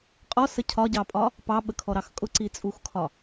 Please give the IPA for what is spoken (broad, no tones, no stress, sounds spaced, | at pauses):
qʼ ɔ s ə cʰ ɒ ɟ ɑ pʼ ɒ | p ɑ ɓ ə kʰ ɔ ɾ ɑ x kʼ ʊ ǀ i t͡sʼ u x kʰ ɒ